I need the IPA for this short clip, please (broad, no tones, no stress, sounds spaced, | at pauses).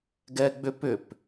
ɡ ɛ ɡ͡b ʏ p ʏ p